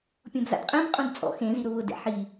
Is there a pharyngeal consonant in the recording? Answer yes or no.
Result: yes